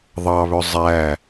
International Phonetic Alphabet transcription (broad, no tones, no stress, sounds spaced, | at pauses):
ðˤ ɑ β ɵ zˤ æ